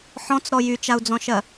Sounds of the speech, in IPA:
ħ ɔ̃ t͡s ɾ ɔ j y t͡ʃ a u̯ d͡z ɔ̃ ʃ ɜ

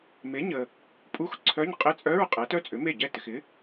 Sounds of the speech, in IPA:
m e˩˥ ɲ ə˨ | pʼ u˧˥˧ x ǀʰ œ˧˥˧ ɲ qʼ ɪ˧˥˧ t͡sʼ œ˧˥˧ ɹ qʼ ɛ˩˥ t œ˧˥˧ t͡sʼ ʏ˩˥ m e˥˩ ɟ ɛ˥˩ t ɪ˨ x ɪ˩˥

